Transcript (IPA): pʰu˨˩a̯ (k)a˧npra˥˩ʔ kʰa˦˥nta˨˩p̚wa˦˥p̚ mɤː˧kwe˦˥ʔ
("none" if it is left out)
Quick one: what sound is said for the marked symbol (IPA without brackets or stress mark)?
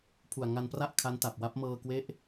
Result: ŋ